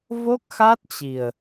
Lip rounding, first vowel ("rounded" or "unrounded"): rounded